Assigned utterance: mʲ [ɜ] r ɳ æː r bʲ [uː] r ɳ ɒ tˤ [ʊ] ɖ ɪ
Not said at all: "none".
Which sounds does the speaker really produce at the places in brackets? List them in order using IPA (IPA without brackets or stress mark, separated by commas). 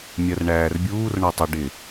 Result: ɜ, uː, ʊ